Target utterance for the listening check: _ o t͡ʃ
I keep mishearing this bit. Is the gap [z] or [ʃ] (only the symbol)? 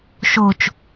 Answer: ʃ